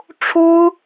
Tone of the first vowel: high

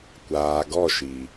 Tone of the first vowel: low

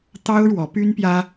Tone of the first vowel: high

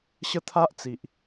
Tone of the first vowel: high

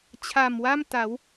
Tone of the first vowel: low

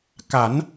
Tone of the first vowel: rising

